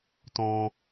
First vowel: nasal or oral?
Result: nasal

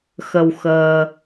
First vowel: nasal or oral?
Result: oral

